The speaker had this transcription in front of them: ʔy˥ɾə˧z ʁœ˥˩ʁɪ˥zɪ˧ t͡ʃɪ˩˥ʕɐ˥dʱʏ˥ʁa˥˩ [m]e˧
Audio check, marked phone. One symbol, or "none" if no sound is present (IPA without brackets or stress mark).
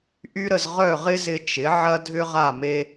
m